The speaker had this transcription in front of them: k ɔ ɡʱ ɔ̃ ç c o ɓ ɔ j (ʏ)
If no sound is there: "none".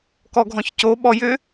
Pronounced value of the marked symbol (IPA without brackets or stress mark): ʏ